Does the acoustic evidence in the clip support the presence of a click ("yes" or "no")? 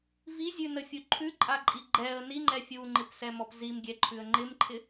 yes